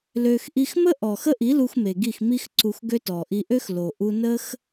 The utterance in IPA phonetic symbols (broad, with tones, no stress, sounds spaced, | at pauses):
l ø˧ x ʔ i˧ x m ə˦ ʔ ɔ˨ x ə˦ ʔ i˨˦ l u˧ x m e˨ ɡ i˦˨ x m i˦ x ǀ u˧ x ɡ ø˦ t ɔ˨ ʔ i˧ ʔ ø˦ x l o˨ ʔ u˧ n ə˦ x